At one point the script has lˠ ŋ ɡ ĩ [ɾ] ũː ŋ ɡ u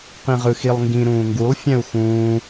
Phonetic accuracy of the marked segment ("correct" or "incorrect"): correct